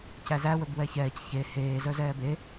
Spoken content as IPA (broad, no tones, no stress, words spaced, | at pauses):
cæzæ wɵbwɛçɛːc çe heː zœzɛːbe